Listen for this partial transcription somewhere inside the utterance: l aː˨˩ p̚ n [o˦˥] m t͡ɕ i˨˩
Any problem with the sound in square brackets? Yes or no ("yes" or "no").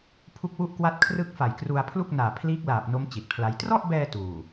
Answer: no